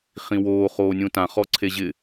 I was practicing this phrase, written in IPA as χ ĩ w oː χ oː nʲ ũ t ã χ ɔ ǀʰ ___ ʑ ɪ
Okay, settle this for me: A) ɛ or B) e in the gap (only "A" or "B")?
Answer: B